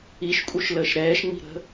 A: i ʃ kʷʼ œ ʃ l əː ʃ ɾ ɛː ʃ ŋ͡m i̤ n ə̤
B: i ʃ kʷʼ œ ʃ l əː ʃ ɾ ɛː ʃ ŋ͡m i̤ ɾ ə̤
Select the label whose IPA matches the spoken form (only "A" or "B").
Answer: B